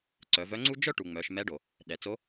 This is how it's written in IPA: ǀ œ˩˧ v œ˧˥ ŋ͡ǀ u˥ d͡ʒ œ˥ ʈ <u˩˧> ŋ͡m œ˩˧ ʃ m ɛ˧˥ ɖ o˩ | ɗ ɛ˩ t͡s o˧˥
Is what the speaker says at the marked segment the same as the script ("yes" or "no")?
no